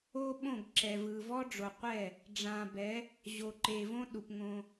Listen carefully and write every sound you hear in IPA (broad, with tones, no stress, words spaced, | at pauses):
o˦ɓõ˦˨ɡ ǁɛ˨vɯ˨ vɔ˦ɖ͡ʐo˨qʷɛ˦˨ | ɖ͡ʐã˨bɛ˨˦ | ʑo˨ǃe˨võ˦ ɗu˨pŋõ˦